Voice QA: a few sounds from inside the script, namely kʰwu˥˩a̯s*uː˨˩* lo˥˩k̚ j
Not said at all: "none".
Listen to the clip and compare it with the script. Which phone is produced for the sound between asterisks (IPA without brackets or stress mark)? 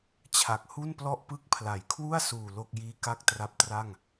uː˨˩